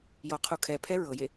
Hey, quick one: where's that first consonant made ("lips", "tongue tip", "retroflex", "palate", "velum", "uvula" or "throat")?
palate